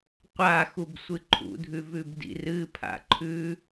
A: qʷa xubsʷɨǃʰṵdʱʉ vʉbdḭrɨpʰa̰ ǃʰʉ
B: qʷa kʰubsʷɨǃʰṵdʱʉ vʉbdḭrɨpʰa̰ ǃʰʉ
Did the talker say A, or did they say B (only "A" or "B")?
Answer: A